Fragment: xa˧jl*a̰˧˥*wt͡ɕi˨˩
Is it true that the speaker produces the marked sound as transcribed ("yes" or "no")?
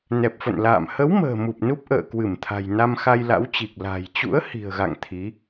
yes